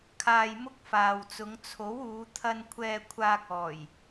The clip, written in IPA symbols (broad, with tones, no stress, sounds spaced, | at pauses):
kʰ aː˧ j m ʊ˥ k̚ f aː˨ w t͡s ʊ˨˧ ŋ t͡sʰ o˨˥ w uː˨˧ t̪ʰ ɐ˧ n kʷʰ ɛː˧ kʷʰ aː˧ k̚ ɔː˨˩ j